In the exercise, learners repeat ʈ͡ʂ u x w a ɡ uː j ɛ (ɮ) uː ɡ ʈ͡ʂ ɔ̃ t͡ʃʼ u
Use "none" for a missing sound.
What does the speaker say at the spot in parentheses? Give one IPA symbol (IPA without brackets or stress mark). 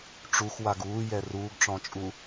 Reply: r